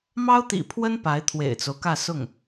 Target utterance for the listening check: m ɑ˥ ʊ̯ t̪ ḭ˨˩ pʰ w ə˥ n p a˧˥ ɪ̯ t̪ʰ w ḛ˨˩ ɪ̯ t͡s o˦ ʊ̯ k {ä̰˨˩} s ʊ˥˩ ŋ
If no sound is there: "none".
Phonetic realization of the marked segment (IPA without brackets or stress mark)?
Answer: ä˥˧